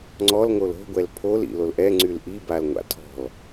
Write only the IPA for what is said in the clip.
ŋ͡ǀ ɔ l ŋ o l o̤ ɡʷ ɛ l pʰ o l ḭ l o l ʔ ɛ ŋ͡ǀ y l ʔ i b a l ŋʷ a̰ tʰ ɔ̤ l

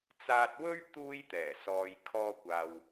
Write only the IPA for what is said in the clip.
t͡s aː˧ t̚ w ɵ˥ ɥ t̪ uː˥ j t̪ ɛː˨˩ s ɔː˨ j kʰ ɔː˧ kʷ aː˨ w

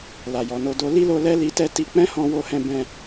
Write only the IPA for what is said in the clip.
l a˨ j ɔ˨ n o˧ d o˧ l i˦ l o˧ l ɛ˦ l i˧ t ɛ˦ t i˧ k͡p ɛ̃˦ h ɔ̃˧ w o˧ h ɛ̃˧ b ɛ̃˧

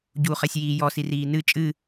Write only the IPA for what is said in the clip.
ɟ u χ ɛ sʲ j iː j ɔ s i r iː n ɨ t͡ʃʼ ɨ

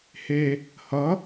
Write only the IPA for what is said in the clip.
h e | h ʌ

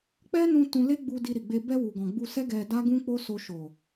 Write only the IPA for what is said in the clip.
k͡p ɛ˦ n ũ˧ t ũ˧ l e˦ ɡ͡b u˧ d i˧ ɾ i˨ ɡ͡b e˧ b ɛ˧ w u˨ ɡ ɔ̃˨ ɡ͡b u˧ s ɛ˦ ɡ ɛ˧ d a˦ ɡ ũ˦ k͡p o˦ s o˧ ʃ o˨

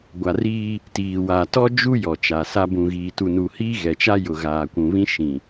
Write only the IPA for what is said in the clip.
ɡʷ a˨ r iː˦ | t iː˨ w aː˨ t ɔ˦ d͡ʒ u˦ j ɔ˨ t͡ʃ a˨ s a˦ b ũ˨ ɣ iː˨ t u˨ n u˨ h iː˦ ɣ ɛ˨ t͡ʃ a˦ j ʊ˨ ɣ aː˨ kʷ ũ˨ β ĩ˦ ʃ ĩ˨

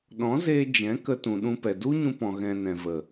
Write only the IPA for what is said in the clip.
ɗ ɔ̃˨˦ z eː˧ d͡ʒ ɛ̃˨˦ k ə˧ t ũ˨ ɗ ũ˧ p ɛ˨ d u˦ ɲ ũ˧ p ɔ̃˨ ɣ ɛ̃˨ n ɛ̃˨ v ə˨

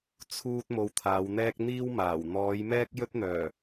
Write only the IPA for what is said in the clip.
t͡sʰ uː˥ t̚ m o˧ w t̪ʰ aː˨˧ w n̪ ɛː˥ k̚ n̪ iː˥ w m aː˨˩ w n̪ ɔː˨˧ j m ɛː˥ k̚ j ɵ˥ t̚ n̪ œː˨˩

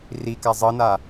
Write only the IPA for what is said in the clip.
r i k a zˤ ɤ n a

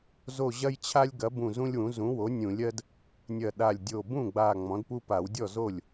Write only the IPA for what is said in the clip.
z o˧˩ ʑ ɐ˦ j t͡ɕʰ a˦ lʲ ɡ ɐ˩˥ b ũ˧˩ z ũ˦ lʲ w ũ˩˥ z ũ˩˥ w o˩˥ nʲ ũ˨˩˦ lʲ ɜ˦ d | nʲ ɐ˧˩ ɗ a˧˩ lʲ dʲ o˧˩ b ũ˥˩ ɡ͡b a˧˩ ŋ͡m ɔ̃˩˥ d p u˦ p a˨˩˦ w dʲ ɔ˥˩ z o˥˩ lʲ

